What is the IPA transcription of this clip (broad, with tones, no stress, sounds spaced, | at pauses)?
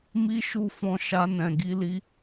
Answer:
m i˦ ʃ u˦˨ f ɔ̃˧ ʃ a˧ n ɛ̃˨ ɡ i˨˦ l i˧